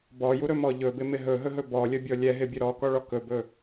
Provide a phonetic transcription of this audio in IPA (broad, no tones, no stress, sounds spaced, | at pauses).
b ɔ j u ɾ ɵ m ɔ ʎ ɵ b ɪ m ɪ ɦ ɵ ɦ ɵ ɦ ɵ b ɔ lʲ ə bʲ ɔ lʲ ɛ ɦ ɪ bʲ ɵ ɾ ɔ k ɔ ɭ ɔ k ɵ b ɵ